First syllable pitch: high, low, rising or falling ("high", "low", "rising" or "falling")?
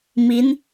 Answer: rising